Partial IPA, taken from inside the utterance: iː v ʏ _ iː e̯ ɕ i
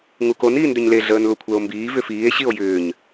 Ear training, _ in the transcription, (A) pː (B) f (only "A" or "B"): B